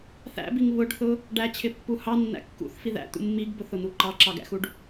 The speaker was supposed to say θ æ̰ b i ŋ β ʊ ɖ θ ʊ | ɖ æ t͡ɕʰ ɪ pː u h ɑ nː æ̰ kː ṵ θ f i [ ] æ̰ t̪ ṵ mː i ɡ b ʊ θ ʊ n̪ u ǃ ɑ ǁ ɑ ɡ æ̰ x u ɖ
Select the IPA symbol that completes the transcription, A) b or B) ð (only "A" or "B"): B